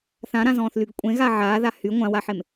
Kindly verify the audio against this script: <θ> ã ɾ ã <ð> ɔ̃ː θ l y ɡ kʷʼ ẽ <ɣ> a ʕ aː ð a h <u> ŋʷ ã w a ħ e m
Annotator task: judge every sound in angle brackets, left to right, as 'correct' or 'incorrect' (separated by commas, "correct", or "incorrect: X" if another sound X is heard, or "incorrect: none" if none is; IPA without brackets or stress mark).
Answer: correct, incorrect: z, correct, incorrect: y